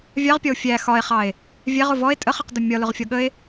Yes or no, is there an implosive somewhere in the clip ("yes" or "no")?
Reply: yes